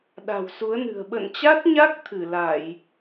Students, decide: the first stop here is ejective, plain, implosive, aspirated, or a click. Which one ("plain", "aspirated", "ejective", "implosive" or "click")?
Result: implosive